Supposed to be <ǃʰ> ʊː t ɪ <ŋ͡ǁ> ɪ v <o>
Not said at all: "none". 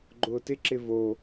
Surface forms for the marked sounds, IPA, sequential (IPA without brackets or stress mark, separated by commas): ɡ͡ǃ, ǁ, o